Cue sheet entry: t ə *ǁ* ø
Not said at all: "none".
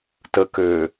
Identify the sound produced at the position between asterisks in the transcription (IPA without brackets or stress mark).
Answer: k